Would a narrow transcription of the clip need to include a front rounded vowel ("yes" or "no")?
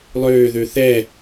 yes